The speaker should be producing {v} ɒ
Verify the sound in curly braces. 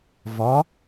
correct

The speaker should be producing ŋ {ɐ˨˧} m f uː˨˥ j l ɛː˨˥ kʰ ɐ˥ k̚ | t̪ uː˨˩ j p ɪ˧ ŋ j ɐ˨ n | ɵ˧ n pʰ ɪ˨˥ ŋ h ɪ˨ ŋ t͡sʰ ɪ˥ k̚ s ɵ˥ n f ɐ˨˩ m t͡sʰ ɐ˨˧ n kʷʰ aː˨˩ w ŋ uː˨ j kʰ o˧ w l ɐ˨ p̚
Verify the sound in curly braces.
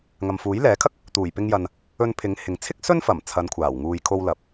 incorrect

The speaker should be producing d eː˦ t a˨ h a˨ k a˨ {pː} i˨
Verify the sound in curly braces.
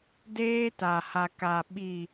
incorrect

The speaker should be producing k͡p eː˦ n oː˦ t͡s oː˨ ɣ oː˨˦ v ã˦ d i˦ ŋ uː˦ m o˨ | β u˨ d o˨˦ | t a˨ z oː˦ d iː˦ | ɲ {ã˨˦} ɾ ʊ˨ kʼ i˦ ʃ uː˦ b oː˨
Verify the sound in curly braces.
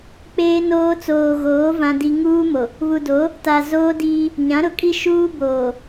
correct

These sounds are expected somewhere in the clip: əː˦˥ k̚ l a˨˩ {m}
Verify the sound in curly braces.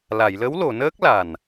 incorrect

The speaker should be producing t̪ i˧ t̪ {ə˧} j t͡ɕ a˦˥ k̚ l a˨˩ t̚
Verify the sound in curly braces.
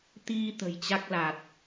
incorrect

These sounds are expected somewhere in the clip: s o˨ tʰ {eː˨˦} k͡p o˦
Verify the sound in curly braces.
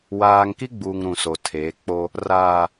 correct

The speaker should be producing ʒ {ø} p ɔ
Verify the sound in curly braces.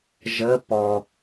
incorrect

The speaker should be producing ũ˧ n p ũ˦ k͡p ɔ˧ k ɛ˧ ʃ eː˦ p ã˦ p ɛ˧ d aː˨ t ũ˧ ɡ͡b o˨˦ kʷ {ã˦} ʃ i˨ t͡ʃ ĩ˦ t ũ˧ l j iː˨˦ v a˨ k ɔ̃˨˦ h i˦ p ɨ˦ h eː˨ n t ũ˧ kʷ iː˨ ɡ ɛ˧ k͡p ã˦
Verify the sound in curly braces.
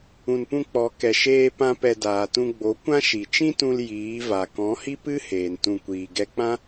correct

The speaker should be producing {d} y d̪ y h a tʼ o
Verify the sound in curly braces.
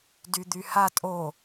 correct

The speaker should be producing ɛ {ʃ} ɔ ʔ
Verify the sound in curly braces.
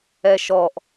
correct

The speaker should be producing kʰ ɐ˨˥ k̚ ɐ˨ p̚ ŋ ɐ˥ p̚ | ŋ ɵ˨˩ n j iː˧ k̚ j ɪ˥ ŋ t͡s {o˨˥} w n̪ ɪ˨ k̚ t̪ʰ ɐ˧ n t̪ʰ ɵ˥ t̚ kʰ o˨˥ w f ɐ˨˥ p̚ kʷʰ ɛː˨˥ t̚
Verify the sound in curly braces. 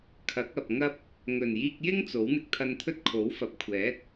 correct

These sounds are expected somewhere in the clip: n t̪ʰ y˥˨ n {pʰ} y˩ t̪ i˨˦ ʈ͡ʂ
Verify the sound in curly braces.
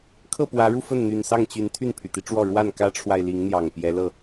correct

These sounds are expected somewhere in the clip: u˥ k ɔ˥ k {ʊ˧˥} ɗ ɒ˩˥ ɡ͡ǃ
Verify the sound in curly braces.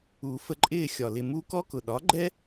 incorrect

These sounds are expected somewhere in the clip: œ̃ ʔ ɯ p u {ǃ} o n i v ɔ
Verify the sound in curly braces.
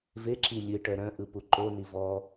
correct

